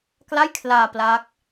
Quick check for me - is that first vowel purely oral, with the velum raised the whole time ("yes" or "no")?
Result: yes